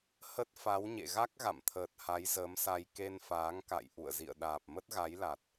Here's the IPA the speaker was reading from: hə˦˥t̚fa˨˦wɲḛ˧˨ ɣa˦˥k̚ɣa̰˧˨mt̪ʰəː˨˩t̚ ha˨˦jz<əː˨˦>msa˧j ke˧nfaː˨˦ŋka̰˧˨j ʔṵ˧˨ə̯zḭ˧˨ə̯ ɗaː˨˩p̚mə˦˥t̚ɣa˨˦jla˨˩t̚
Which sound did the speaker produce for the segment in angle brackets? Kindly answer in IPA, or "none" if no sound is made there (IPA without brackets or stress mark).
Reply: əː˨˦